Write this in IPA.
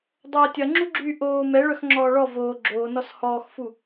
dˤ ɐː tʲ ɐ ŋ͡ǁ u ɡ͡ǁ yː ʔ oː m ɛ ɭ œ x ŋ͡ǁ ɔː ɭ ɔ v oː ɡ͡ǁ oː n ɔ s h ɔː x f u

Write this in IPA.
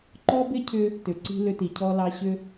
ǃ ɔ˦ b ɪ˦ cʰ ʏ˧ | t ʏ˨ ǀ i̤˧ l ʏ˧ t i˨ cʰ ɔ˧ l ɑ˧ ɕ ʏ˧

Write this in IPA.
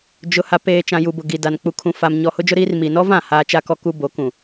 d͡ʒ ʊ˨ h a˨ p eː˨ t͡ʃ ã˨ j u˨ b ʊ˨ ɡ i˨ d a˨ n k͡p u˨ kʰ ũ˨ f a˨ m ɲ ɔ˨ h ʊ˦ d͡ʒ ʊ˦ ɾ iː˦ r m i˨ n ɔ˦ v ã˦˨ h aː˦ t͡ʃ a˦ k ɔ˦ k u˦ b o˨˦ k ũ˨

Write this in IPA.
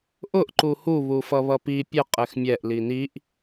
ʔ ʊ ʔ ǃ u h u β u f ʌ β ʌ p i pʲ ə qʼ ɛ x mʲ ɛ ʔ l i n i ʔ

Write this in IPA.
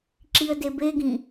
ǁ i ə̯ d e b e ɡ ĩ

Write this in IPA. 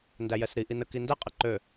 n d æ j ɛ s ɾ i ʔ i n ə k i n d ɛ qʼ ɛ ǃ ø

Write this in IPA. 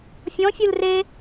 fʲ ɔ̃ fʲ u l r e

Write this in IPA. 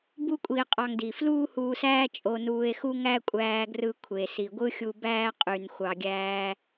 b u˥ kʷʼ i˧ e̯ qʼ ɑ˧ ŋ d i˩ f l uː˥ h uː˧ s æː˥ t͡ʃʼ o˧ n uː˧ e̯ x u˥ ŋ æ˥ kʷʼ æː˧ ɡ r ɯ˧ kʷʰ e˩ s i˩ ɡʷ ɯ˥ xʲ u˧ b æː˥ qʼ y˩ n xʷ ɑ˩ ɡʲ æː˧

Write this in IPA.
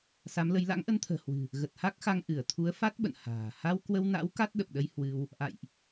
s a˨˦ m l ə˨˦ j l a̰˧˥ ŋ ʔ ə˧ n t̪ʰ ə̤ː˨˩ h w ɨ̤˨˩ | ɣ ə˨˩ t̚ h a˦˥ k̚ x a˧ ŋ ʔ ɨ˧˩ ə̯ t̪ʰ u˨˦ ə̯ f a˦˥ t̚ ɓ ə̰˧˨ n h a̤ː˨˩ h a˧ w k w ə˧ w n a̰˧˥ w k a˦˥ t̚ ɗ ə˨˩ p̚ ɗ ə˧ j h w ɨ˧ w | ʔ a̰˧˨ j ʔ

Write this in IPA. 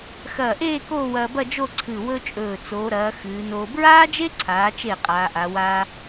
x ɐː˧˩ ʔ eː˥˧ k oː˥˧ w ɐː˧ b ɐ˥˧ d͡ʒ o˥˧ ǀʰ ɨ˧˩ w ɵ˥ t͡ʃʼ ɵː˧˩ t͡s oː˩˧ ɾ ɐː˩˧ x ɨː˩˧ n oː˧ b ɹ aː˥ d͡ʒ e˥ ǀʰ aː˩˧ t͡ʃ e˧˩ qʼ aː˩˧ ʔ a˩˧ w aː˥

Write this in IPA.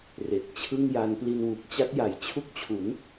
r e˨˩ k̚ t͡ɕʰ ɯ˥˩ ŋ j a˦˥ n p l i˧ n w u˨˩ k̚ t͡ɕ a˦˥ t̚ j a˩˦ j t͡ɕʰ u˦˥ k̚ t͡ɕʰ u˩˦ n

